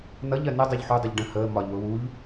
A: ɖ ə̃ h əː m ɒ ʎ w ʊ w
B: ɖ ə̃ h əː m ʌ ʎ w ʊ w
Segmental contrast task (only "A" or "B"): A